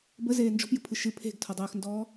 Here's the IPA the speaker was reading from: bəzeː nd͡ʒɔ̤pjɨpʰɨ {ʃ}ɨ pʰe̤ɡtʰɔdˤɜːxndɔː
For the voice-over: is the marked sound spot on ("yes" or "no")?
yes